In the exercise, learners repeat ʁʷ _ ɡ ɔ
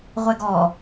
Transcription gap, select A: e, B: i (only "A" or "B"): A